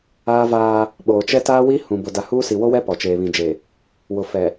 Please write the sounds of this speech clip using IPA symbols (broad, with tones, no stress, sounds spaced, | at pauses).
aː˦ v aː˦ | ɓ oː˨ t͡ʃ ɛ˦ t aː˦ w i˦ h ũ˨ b ʊ˨ d a˨ h uː˦ s i˨ w o˦ w ɛ˦ p ɔ˨ t͡ʃ eː˨ β ĩ˨ d͡ʒ e˨ | w ʊ˨ f ɛ˨